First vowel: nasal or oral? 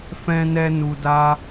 nasal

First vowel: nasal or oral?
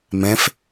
nasal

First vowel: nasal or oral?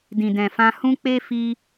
nasal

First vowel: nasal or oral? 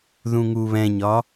nasal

